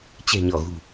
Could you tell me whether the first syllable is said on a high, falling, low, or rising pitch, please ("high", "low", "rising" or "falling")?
low